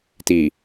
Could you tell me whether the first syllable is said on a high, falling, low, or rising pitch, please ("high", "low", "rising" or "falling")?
low